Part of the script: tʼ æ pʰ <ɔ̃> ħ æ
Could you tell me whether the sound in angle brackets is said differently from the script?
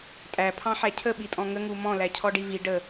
yes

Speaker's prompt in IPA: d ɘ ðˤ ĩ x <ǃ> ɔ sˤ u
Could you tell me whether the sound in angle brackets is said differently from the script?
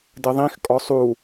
yes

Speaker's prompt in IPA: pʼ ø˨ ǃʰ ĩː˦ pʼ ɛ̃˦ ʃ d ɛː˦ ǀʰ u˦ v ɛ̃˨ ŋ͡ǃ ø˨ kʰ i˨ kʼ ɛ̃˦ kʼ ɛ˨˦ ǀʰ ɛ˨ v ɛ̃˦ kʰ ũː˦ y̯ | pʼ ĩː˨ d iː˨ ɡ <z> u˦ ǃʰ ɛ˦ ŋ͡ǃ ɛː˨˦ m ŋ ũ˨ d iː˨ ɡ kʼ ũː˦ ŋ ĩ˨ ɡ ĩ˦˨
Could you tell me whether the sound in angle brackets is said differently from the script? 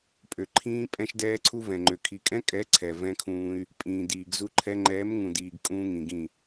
no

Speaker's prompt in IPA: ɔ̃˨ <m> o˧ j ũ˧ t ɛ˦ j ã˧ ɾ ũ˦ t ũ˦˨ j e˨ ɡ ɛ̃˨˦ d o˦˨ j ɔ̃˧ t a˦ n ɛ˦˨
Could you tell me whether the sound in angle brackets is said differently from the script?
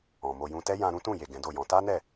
no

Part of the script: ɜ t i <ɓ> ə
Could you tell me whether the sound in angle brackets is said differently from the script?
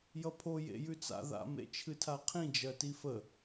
yes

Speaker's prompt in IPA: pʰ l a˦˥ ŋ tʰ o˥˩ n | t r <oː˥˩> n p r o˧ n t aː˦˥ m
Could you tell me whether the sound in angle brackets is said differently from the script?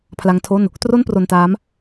yes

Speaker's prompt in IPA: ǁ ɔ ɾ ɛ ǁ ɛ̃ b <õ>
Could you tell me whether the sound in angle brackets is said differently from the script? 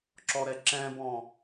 yes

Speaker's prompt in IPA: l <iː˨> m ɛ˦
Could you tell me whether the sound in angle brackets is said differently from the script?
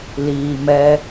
no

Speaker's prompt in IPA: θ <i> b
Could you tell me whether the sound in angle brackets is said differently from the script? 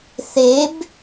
yes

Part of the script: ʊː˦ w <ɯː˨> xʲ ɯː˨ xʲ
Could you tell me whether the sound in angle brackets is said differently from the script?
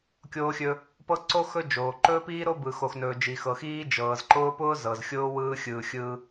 yes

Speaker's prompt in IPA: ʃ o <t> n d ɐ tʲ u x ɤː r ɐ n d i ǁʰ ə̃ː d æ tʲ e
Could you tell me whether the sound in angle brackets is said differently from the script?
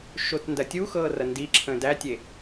no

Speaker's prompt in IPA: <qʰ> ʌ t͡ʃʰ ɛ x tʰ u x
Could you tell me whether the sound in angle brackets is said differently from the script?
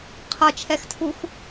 no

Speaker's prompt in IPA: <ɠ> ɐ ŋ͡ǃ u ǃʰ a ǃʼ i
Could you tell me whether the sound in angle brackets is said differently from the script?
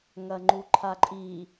yes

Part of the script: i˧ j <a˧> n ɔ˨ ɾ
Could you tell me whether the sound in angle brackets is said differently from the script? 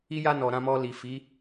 no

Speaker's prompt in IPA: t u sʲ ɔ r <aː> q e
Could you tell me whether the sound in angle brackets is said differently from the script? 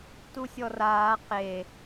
no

